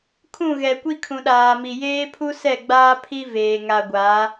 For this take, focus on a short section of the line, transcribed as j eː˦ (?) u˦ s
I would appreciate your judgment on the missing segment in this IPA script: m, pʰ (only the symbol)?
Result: pʰ